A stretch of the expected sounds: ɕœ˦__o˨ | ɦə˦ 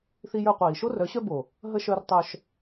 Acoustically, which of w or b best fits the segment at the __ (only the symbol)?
b